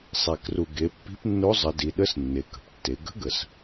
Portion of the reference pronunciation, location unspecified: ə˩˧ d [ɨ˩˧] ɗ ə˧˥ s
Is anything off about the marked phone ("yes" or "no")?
yes